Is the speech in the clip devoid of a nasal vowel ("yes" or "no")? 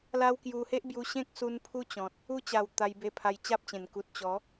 no